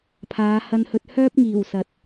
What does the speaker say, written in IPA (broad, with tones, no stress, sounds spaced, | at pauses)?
pʰ aː˨˧ h ɐ˧ n h ɵ˧ t̚ h œː˥ p̚ ŋ iː˨˩ w s ɐ˨ t̚